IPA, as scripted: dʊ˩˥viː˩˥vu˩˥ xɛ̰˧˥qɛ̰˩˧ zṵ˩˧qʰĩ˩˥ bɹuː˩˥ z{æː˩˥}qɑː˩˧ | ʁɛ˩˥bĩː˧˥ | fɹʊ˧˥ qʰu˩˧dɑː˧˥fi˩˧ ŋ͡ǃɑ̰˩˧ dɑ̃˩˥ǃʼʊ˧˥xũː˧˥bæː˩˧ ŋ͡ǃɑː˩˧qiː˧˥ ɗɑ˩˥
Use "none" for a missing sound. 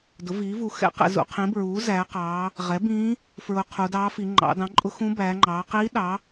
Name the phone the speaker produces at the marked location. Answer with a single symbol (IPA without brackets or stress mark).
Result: æː˩˧